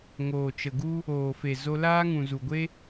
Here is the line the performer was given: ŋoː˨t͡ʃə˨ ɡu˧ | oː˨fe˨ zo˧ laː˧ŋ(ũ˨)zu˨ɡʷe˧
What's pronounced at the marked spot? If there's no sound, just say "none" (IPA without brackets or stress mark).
ũ˨